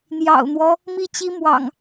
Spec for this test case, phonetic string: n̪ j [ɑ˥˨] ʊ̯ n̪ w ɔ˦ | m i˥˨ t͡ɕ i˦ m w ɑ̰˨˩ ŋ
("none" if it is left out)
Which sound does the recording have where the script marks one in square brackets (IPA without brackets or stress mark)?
ɑ̰˨˩